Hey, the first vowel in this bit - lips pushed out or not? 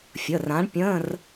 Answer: no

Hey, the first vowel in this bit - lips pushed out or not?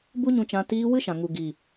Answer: yes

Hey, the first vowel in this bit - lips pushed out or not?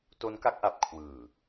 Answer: yes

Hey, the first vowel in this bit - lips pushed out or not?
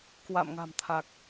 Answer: no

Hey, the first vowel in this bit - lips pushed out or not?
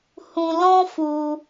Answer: yes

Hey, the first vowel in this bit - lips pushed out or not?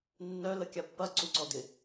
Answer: yes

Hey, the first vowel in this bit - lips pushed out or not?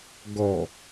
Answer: yes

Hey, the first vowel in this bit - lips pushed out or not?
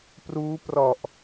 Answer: yes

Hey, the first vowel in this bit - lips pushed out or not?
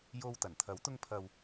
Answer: yes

